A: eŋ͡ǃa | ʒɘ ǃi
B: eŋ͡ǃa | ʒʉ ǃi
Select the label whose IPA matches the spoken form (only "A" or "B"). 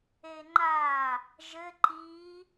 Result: A